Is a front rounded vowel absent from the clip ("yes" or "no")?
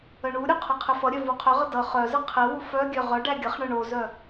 no